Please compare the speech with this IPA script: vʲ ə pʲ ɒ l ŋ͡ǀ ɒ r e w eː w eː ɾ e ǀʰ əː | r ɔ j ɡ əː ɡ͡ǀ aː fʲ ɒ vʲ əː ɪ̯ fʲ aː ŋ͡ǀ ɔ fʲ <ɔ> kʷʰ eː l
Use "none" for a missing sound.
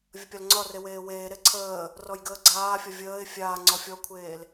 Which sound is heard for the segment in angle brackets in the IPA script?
ɔ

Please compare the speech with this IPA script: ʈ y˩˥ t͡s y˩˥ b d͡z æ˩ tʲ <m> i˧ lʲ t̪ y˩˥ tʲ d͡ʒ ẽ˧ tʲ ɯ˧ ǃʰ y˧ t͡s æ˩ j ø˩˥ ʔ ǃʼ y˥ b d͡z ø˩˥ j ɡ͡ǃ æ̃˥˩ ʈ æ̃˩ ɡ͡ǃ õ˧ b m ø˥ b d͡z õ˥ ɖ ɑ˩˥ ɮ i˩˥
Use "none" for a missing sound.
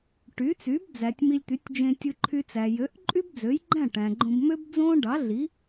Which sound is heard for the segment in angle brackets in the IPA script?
m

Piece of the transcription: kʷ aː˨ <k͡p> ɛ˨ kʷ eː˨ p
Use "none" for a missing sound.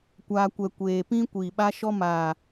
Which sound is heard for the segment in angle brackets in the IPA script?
kʷ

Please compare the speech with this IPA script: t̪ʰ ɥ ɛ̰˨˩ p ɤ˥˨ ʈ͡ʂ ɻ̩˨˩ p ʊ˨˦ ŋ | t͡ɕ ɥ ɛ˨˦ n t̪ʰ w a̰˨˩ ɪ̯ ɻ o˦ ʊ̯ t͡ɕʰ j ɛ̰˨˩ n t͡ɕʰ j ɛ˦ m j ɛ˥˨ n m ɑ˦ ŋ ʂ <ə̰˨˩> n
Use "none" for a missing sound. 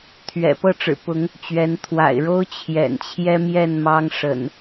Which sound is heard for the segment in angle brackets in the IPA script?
ə̰˨˩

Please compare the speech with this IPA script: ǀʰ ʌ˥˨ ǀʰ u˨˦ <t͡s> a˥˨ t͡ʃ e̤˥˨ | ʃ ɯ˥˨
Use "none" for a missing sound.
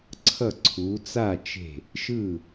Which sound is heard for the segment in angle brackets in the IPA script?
t͡s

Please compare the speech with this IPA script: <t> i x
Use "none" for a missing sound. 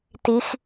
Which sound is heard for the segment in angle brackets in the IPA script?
t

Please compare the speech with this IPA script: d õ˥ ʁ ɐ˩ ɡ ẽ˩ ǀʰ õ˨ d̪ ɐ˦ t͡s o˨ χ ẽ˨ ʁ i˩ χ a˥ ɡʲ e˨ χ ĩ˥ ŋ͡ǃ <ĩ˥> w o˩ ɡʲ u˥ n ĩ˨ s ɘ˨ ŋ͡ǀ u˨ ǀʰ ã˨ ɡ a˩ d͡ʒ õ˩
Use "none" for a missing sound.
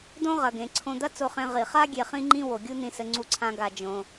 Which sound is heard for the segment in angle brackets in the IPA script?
ĩ˥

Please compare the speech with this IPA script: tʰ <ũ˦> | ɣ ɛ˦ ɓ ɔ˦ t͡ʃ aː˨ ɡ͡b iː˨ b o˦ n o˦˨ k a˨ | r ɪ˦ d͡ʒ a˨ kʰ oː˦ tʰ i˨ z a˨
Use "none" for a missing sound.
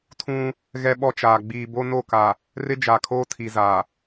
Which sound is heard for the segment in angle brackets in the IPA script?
ũ˦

